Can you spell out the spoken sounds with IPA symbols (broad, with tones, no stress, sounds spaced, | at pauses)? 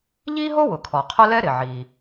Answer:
ʎ i˥ ɦ o˥ w ʊ˩ kʰ ɔ˩ qʰ ʊ˥ l ɛ˥ ɾ ɪ˩ ʕ i˩